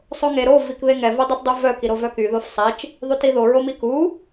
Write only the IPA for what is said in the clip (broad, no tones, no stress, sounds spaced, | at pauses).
sˤ o ŋ e ɾ o v i k β e ŋ ɛ v u dˤ i t dˤ u v œ k i ɾ o v œ k y ð o f sˤ e t͡ʃ | ðˤ y t i ð o ɹ o m i k u